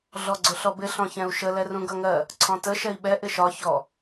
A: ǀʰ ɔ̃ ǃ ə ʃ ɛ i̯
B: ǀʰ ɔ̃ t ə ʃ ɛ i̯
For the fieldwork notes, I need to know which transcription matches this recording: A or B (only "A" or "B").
B